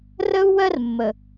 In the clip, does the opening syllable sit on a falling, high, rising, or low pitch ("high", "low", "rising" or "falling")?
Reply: high